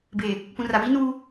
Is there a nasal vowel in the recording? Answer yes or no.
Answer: yes